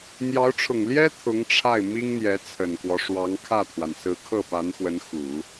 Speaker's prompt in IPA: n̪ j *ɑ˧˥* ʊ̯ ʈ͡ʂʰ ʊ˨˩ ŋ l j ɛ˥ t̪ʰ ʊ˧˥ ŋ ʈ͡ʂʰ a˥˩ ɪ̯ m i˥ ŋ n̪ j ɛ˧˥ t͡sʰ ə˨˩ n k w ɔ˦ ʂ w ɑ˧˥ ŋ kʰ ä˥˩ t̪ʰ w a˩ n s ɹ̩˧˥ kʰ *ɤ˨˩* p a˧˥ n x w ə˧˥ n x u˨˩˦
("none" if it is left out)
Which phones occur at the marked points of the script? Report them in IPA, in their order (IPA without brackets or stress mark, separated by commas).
ɑ˧˥, ɤ˥˩